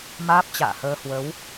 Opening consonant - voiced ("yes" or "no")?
yes